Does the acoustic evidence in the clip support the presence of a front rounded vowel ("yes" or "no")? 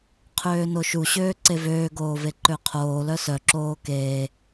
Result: yes